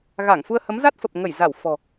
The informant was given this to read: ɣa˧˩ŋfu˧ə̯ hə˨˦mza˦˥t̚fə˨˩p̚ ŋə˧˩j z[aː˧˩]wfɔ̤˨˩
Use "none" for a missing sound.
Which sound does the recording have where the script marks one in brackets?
a˧˩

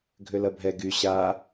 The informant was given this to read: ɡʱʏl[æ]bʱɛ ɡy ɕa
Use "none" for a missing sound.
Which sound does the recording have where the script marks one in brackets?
ɐ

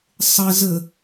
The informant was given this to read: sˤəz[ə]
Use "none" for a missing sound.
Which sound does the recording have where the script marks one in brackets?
ə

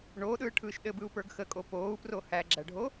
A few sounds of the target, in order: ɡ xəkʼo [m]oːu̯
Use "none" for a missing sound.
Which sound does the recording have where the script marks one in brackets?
p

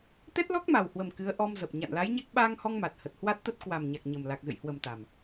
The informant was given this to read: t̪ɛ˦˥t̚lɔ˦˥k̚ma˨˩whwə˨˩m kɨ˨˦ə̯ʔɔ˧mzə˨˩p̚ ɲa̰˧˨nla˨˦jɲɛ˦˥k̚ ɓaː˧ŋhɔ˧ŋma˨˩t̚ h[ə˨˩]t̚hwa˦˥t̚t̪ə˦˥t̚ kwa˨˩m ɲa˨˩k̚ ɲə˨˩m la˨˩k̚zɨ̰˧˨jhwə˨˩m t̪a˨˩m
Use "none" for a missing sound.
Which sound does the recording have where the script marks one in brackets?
ə˨˩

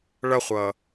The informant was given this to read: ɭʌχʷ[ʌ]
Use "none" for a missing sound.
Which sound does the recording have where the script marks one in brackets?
ʌ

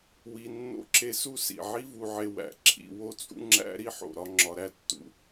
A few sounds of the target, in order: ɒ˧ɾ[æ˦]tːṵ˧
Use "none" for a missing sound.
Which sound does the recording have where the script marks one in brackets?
æ˦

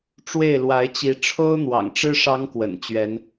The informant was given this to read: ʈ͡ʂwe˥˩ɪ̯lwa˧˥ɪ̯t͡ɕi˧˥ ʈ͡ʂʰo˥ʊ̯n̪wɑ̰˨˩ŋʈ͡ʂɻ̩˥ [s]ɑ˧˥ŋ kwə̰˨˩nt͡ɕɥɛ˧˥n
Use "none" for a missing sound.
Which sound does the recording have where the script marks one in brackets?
ʂ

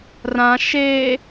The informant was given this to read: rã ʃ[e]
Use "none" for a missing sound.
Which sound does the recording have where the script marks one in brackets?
e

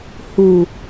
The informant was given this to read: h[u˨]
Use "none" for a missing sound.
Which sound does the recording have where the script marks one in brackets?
u˨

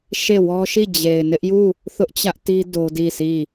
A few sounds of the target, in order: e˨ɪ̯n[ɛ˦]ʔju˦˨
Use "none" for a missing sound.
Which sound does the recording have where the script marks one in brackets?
ɪ˦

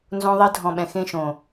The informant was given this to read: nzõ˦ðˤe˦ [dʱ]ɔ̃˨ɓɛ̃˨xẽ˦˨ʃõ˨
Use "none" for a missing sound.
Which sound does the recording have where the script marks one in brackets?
dʱ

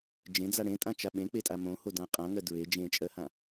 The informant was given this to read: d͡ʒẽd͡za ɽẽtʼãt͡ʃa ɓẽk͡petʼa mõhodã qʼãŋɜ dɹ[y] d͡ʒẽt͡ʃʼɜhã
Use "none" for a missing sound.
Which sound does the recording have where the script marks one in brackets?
e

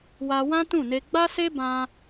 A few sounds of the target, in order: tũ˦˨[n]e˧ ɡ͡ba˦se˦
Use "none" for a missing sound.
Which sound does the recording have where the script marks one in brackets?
n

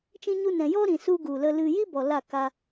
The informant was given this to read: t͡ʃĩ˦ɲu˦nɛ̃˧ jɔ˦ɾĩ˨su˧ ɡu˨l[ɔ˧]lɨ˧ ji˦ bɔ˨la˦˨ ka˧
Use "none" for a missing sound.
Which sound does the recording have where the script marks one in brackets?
ə˧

